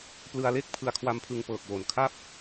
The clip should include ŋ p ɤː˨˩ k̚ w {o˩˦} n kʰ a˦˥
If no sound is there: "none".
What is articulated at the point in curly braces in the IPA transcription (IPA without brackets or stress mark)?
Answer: o˩˦